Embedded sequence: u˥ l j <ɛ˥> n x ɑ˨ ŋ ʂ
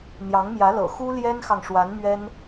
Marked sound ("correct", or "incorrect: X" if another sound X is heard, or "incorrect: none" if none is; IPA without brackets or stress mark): correct